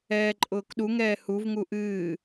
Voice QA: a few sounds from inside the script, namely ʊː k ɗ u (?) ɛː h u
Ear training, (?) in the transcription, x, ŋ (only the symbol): ŋ